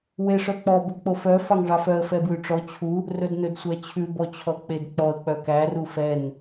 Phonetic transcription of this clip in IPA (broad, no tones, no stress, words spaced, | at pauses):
weʂœk͡pɔ bɵk͡pofœ fɑŋʐɑfœə̯ fɛbwʉʈ͡ʂɔ t͡ɕʰu | rɵdnɵdsʷæt͡ɕʰʉ bɔt͡ɕʰɔk͡pedk͡pɔə̯ k͡pœkæ rufɛn